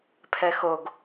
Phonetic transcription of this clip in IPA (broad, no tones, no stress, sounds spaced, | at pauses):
pʰ ɛ x o ɡ